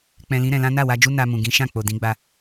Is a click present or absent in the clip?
absent